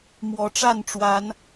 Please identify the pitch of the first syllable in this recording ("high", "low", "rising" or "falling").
rising